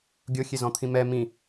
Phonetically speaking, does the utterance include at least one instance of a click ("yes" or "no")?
no